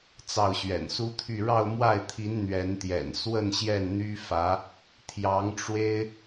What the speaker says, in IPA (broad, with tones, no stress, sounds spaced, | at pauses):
t͡s ɑ˥˩ ʊ̯ ɕ ɥ ɛ̰˨˩ n s u˥ t̪ʰ y˥˧ ɻ ɑ˥˧ ʊ̯ m w a˥˩ ɪ̯ t̪ʰ i˧˥ n n̪ ɥ ɛ˧˥ n t̪ j ɛ̰˨˩ n s w ə˥˧ n ɕ j ɛ˥˩ n n̪ y˥ f ä˧˥ | t̪ʰ j ɑ˧˥ ŋ ʈ͡ʂ w e˥ ɪ̯